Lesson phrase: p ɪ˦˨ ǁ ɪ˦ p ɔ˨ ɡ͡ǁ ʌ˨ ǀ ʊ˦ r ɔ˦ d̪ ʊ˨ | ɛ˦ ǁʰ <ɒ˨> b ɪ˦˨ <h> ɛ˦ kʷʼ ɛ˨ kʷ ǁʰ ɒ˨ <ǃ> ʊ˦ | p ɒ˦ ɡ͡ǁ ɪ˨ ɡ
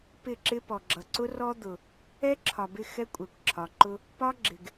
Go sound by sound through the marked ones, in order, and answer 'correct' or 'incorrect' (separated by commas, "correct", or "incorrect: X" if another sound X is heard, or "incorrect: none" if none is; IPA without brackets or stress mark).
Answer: correct, incorrect: x, correct